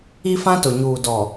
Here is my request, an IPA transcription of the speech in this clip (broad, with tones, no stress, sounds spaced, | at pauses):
i˦ f ã˦ t ʊ˨ ɲ uː˨ d ɔ˨